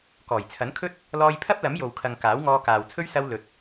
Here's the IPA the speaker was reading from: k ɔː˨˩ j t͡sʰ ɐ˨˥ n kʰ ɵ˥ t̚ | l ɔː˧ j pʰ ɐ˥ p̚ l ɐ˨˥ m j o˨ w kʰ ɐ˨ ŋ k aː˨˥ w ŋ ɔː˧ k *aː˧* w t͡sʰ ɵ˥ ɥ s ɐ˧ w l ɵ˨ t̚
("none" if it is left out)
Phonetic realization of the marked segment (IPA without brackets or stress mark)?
aː˨